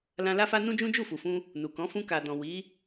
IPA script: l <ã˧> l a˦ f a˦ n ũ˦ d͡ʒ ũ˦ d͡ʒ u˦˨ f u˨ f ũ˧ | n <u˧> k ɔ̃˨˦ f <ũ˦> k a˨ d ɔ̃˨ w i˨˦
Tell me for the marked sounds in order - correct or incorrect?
correct, incorrect, incorrect

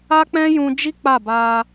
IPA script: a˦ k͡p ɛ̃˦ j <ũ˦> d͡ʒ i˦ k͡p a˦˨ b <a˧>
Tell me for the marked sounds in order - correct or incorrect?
incorrect, correct

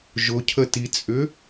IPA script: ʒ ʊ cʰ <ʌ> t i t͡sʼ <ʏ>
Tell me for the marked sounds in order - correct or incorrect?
incorrect, correct

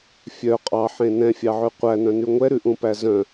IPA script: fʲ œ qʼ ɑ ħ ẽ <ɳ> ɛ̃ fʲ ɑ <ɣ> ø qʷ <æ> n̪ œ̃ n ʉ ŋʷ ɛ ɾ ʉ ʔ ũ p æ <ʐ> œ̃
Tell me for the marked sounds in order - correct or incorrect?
incorrect, incorrect, correct, incorrect

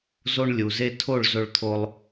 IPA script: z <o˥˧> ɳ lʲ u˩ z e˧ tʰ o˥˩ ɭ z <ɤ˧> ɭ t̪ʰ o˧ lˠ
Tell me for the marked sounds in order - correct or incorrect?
incorrect, incorrect

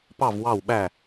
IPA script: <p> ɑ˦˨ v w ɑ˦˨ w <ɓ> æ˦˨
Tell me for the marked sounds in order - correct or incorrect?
correct, correct

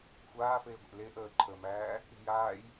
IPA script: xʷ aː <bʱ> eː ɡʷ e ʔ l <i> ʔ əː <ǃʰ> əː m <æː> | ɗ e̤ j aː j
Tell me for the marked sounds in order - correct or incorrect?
incorrect, incorrect, correct, correct

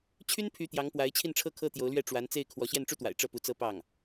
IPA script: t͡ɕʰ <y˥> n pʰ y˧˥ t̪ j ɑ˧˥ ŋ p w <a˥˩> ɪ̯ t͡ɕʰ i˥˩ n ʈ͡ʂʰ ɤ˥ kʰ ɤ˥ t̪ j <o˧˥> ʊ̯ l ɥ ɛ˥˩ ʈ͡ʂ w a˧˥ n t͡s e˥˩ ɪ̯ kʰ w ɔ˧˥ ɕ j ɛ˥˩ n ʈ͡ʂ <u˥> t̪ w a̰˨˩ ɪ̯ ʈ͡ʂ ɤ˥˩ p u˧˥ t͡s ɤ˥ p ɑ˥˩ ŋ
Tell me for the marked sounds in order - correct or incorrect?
correct, incorrect, correct, correct

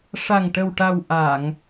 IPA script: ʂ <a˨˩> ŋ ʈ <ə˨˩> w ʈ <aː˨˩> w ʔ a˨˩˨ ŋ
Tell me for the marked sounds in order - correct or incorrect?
correct, correct, incorrect

